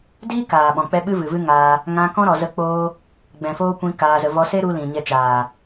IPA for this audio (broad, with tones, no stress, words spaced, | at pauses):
diː˦ kaː˨ɓɔ̃˨k͡pɛ˦ ɓɨ˦vɨ˨vɨ˦ ŋaː˧ | ŋã˧kɔ̃˦ ɾɔ˧zə˦k͡poː˦ | ɡ͡bɛ̃˨foː˦kʷĩ˧ kaː˧zə˧ vɔ˧se˦ɾu˧ lĩ˨ɲɛ˧t͡ʃaː˨